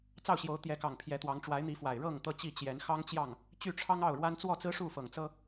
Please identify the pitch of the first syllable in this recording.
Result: falling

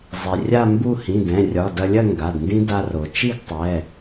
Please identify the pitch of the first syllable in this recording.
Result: low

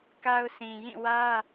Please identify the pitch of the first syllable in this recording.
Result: high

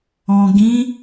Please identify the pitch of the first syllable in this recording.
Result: low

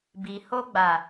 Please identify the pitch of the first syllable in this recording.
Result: low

